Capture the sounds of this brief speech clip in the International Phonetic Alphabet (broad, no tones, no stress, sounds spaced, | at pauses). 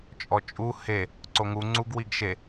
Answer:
t͡ʃʼ ɔ t͡ʃʼ u h e | ǀ o ŋ u ŋ͡ǀ u ɡ w i ɡ ʃ e